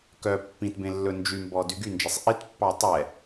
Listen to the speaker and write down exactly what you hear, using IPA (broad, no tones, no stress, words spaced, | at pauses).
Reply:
kœ pːĩt bẽlːɵnd͡ʒymbɔ dyɡynd͡ʒɛsˤ ʔitpːɑ tˤɛ